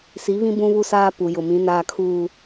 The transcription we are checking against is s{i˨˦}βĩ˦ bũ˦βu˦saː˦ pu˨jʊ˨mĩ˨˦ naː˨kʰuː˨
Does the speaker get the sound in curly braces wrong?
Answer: no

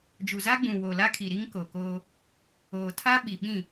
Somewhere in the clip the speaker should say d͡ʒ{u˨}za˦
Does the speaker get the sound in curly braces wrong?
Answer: no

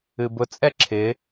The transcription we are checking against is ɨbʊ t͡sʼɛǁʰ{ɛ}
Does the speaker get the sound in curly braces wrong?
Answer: yes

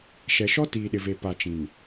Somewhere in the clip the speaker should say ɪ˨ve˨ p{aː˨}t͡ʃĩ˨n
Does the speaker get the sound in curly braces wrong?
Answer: yes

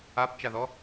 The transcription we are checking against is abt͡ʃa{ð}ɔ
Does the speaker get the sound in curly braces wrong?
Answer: no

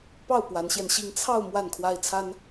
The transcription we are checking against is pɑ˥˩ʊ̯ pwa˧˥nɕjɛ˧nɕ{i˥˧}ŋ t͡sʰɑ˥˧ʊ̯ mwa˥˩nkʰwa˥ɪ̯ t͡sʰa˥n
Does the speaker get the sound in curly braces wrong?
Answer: no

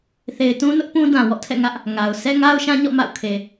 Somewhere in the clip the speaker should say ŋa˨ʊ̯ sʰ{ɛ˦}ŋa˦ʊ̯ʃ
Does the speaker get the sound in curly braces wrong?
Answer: no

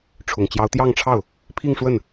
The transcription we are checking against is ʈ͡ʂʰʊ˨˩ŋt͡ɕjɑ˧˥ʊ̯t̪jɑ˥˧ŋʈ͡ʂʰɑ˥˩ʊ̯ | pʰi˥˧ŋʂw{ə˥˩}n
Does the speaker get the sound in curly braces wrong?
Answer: no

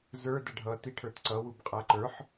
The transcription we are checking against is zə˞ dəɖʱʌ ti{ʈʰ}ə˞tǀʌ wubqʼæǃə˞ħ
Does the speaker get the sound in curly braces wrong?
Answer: no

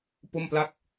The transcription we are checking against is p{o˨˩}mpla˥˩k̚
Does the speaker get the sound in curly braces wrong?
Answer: yes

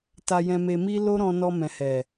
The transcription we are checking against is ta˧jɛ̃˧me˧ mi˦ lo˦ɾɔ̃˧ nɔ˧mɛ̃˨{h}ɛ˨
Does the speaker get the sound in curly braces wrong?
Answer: no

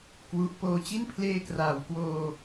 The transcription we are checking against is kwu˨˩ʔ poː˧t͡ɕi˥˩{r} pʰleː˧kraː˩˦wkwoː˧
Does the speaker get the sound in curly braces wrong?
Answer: yes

